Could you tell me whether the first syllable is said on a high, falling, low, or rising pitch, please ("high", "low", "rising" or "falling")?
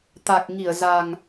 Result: low